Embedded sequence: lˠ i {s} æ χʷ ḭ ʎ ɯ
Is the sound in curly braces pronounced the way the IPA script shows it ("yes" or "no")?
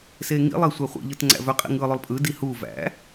no